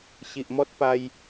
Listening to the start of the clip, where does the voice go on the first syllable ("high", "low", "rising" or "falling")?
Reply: low